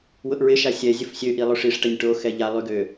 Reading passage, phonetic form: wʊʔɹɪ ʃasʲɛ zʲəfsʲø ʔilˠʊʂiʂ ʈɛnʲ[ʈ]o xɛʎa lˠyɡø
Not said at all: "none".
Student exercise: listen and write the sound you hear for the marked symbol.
ʈ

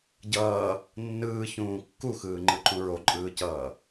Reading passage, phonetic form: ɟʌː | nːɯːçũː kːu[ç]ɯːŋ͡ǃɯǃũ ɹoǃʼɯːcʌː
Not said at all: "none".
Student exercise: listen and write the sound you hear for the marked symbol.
x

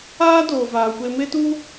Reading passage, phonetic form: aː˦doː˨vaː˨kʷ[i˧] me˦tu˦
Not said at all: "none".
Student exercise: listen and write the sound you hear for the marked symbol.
e˧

